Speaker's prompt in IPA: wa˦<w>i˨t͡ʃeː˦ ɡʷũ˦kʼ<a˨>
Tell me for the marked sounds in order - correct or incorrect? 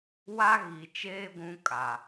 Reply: incorrect: ɣ, correct

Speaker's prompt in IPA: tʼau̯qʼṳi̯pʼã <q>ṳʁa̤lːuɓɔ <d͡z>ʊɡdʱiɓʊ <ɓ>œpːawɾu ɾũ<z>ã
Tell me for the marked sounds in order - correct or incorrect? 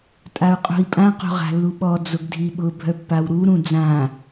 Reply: correct, correct, incorrect: bʱ, incorrect: d͡z

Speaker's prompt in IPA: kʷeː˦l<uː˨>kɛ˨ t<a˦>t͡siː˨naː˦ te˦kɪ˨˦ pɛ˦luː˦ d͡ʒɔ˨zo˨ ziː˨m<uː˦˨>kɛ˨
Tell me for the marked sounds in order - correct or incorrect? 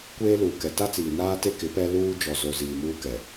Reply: correct, correct, incorrect: uː˦

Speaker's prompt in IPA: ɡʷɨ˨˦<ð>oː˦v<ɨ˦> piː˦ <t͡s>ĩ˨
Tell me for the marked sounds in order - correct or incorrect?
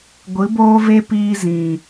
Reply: incorrect: b, incorrect: e˦, incorrect: z

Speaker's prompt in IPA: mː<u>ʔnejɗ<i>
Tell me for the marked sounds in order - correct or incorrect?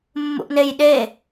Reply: incorrect: ṵ, incorrect: e

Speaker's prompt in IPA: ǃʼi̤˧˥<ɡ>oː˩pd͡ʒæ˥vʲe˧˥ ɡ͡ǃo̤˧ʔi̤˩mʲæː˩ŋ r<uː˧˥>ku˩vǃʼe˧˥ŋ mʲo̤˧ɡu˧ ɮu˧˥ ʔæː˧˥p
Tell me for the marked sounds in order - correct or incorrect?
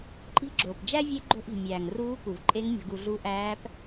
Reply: incorrect: ɡ͡ǁ, correct

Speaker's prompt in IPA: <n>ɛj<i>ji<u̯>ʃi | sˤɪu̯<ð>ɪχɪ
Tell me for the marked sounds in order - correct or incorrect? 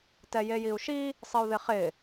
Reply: incorrect: t, incorrect: e, correct, correct

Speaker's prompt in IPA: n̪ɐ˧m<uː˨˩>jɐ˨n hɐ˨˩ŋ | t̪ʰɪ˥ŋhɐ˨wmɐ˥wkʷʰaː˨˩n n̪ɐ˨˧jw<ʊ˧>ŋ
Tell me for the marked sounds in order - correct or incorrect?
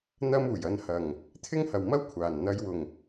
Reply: correct, incorrect: ʊ˨˩

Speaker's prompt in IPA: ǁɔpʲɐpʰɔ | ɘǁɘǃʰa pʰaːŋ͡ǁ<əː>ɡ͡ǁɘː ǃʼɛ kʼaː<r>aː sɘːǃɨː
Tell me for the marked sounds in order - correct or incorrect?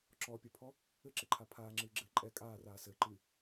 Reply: incorrect: ɨː, correct

